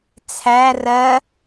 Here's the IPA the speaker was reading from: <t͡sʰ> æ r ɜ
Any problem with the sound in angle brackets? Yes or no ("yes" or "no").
no